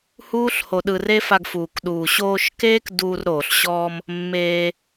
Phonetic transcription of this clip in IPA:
h uː˦ ɬ h o˧ ɗ ɯ˧ r e˦ f a˧ ɡ f uː˨ k ɗ uː˨ ɕ oː˧ ʃ k eː˦ k d uː˧ r ɾ oː˨ ɬ ɕ ɔː˧ m | mː eː˧

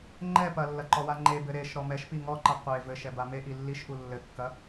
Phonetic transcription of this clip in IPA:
ŋ͡ǃ ɛ p ɐ lː ɐ ǃ ɔ w a ŋ͡ǃ e b ɘ ɾ e ʃ ɾ ɔ m ɛ ʃ p i ŋ ɔ ǃ ɐ qʷ e v ɘ ʃ ɛ b a m e ʔ i lː i ʃ ʔ u lː ɘ kː ɐ

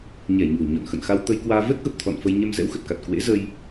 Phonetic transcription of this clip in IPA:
ɲ ɛ˧˩ ɲ ṳ˨˩ ə̯ ɲ ɔ̰˧˨ n x ə̰˧˨ n x a˧ w t̪ ə˧ j k w aː˧ v ɛ˦˥ k̚ ɣ ə˨˩ p̚ t̪ʰ ɔ̰˧˨ n f ə˧ j ɲ ɛ˧ m z ɛ̰˧˥ w x ə˨˩ t̚ k a˨˩ t̚ k w ḛ˧˥ z ə˧ j

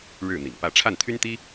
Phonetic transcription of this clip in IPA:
ɻ ɻ̩˥˩ n̪ ḭ˨˩ ŋ p ä˥˧ ʈ͡ʂʰ a˥˩ n t̪ʰ y˥ n t̪ i˥

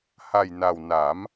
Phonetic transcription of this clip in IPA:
h a˨˩ j n a˨˩ w n a˨˩˦ m

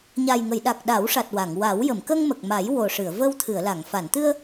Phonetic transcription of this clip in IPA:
ɲ a˨˩ j ŋ ə˨˩˨ j ɗ a˨˩ k̚ ɗ a˨˩˦ w ʂ a˨˩ t̚ w a˨˩˨ ŋ w a˨˩˦ w j ə˨˩˨ m k ə˧ ŋ m ə˨˩ k̚ m a˨˩˦ j w o˨˩ ʂ ɨ˨˩˨ ə̯ v ə˧ w t̪ʰ ɨ˨˩˨ ə̯ l a˨˩˨ ŋ f a˨˩˨ n t̪ ɨ˧ ə̯

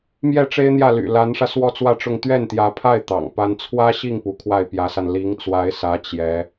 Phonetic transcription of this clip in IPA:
m j ɛ˥˩ ʈ͡ʂ e˥ ɪ̯ n̪ j ä˥˩ l y̰˨˩ l a˧˥ n ʂ ä˧ s w ɔ˥ t͡s w ä˥˧ ʈ͡ʂ ʊ˥˧ ŋ t̪ ɥ ɛ˥˩ n t̪ j ä˧˥ pʰ a˥˩ ɪ̯ t̪ ɑ̰˨˩ ŋ p a˥ n t͡sʰ w ä˥ ɕ i˥˩ ŋ p u˧˥ kʰ w a˥˩ ɪ̯ p j ä˧˥ s a˧ n l i˧˥ ŋ t͡s w a˧˥ ɪ̯ s ä˧˥ t͡ɕ j ɛ˧˥

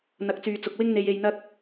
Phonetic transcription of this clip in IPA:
n̪ ɐ˨˥ k̚ t͡s yː˨ t͡s ʊ˨ k̚ w ɪ˥ ŋ n̪ e˧ j e˧ j n̪ ɐ˥ k̚

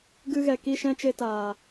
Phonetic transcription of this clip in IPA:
ɡ ɨ˧ ɣ ɛ˨ k i˦˨ ʃ ɛ̃˦ t͡ʃ e˧ t aː˨

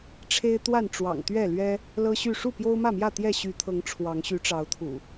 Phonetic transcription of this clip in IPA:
ʈ͡ʂʰ e˦ ɪ̯ t̪ w a˥˨ n ʈ͡ʂ w ɑ̰˨˩ ŋ t̪ ɥ ɛ˥˨ l ɥ ɛ˦ | l ɤ˦ ɕ y˥˨ ʂ u˥˨ p j o˦ ʊ̯ m ä˥˨ m j ä˥˨ t̪ j ɛ˥˨ ɕ y˨˦ t̪ʰ ɤ˨˦ ŋ ʈ͡ʂʰ w ɑ˨˦ ŋ ɕ y˨˦ ʈ͡ʂ ɑ˨˦ ʊ̯ t̪ʰ ṵ˨˩

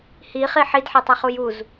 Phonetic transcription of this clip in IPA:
h i χ i ħ i d ħ e tˤ a χ u j u z

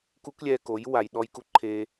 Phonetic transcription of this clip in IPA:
k u˦ k lʲ ɛː˧ k o˨˦ j w a˨ j ɗ ɔ˧ j k u˧ ǃʰ e˧

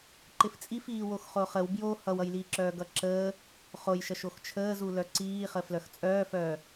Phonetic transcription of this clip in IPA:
ǃ ɪ f t͡sʼ i f iː w o x χ o χ ə w b j o h ʌ w ʌ j l iː ǁ œː ɡ ʌ ǁ əː | χ o j ʃ ʌ ʃ o x t͡ʃʰ əː z u l œ ǀ iː χ ə f l œ x t͡sʼ œː f œː

